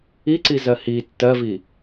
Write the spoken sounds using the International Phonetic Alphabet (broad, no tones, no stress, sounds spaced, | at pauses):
i ǀ i z ɜ h i tː ɜ v i